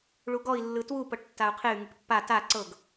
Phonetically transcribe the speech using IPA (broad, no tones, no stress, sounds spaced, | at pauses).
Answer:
ɭ u ɡ ɔ i̯ lː ɯ t w u p ɤ ʈ tː a u̯ qʰ e y̯ ŋ i ʈ pː a t a ǀ ɤ ɡ